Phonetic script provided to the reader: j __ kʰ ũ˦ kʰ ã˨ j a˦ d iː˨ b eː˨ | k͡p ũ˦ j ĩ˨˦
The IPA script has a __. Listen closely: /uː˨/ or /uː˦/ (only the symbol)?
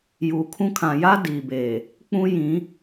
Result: uː˨